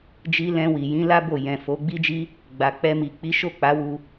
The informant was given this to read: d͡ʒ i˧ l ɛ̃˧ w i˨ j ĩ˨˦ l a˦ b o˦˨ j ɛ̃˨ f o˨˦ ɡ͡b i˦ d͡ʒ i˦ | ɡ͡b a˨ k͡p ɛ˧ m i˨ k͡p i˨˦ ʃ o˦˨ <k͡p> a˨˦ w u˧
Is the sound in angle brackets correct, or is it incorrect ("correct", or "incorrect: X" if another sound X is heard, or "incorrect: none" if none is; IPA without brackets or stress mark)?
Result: correct